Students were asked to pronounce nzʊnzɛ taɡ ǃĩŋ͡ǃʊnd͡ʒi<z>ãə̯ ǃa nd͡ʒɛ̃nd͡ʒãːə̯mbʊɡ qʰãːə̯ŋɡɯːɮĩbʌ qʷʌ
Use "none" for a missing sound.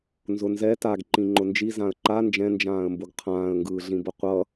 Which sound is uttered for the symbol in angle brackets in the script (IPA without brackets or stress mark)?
z